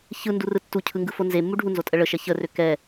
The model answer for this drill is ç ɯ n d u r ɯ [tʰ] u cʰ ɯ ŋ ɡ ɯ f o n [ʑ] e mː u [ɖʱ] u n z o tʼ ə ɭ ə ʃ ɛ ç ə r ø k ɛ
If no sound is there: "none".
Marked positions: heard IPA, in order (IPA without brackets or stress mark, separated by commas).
tː, z, ɖʱ